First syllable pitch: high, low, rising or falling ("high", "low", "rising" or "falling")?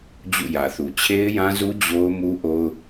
falling